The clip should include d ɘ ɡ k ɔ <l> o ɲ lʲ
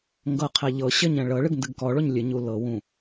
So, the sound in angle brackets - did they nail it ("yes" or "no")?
no